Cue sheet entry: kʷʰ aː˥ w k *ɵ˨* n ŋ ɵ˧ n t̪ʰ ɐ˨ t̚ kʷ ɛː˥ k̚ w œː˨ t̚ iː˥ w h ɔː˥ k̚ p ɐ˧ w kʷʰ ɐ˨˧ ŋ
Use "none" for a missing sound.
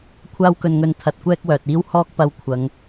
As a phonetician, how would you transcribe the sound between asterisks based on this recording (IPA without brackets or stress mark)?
ɵ˧